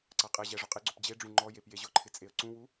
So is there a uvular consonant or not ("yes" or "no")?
yes